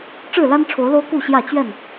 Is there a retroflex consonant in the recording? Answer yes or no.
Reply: yes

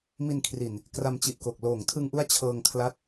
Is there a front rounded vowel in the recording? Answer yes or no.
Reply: no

